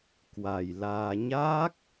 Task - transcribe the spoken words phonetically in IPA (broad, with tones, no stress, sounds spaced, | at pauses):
k w a˨˩ j l aː˧ ɲ aː˦˥ k̚